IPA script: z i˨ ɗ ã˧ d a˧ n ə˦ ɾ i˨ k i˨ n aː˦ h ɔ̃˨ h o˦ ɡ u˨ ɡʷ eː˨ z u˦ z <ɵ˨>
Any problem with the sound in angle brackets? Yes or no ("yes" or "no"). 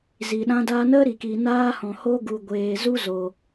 yes